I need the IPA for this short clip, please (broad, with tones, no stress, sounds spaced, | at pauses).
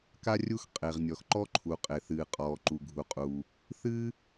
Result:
k a˥ rʲ u˥ x qʼ e˩ ʁ nʲ ɔ˩ x ǃ ɔ˥ ǃʰ u˩ qʼ e˩ θ ɨː˩ qʼ ɔː˩ ǃ u˩ ɡʱ u˩ qʼ uː˩ | θ ɨː˥